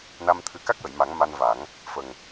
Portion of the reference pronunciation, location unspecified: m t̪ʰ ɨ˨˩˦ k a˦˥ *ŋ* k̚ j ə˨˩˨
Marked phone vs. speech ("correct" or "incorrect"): incorrect